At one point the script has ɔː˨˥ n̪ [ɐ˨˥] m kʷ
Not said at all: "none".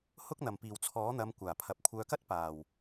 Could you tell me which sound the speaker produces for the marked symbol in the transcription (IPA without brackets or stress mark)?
ɐ˨˧